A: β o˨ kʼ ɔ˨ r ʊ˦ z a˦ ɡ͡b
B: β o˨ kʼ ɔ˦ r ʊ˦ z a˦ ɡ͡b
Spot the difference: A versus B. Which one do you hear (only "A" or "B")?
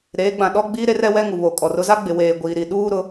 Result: A